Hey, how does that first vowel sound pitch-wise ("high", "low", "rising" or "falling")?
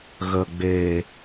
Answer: low